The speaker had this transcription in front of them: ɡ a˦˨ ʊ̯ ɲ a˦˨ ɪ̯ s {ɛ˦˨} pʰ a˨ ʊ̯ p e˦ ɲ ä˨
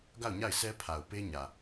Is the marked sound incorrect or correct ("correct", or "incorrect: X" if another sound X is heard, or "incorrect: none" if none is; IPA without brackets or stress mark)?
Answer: incorrect: ɛ˦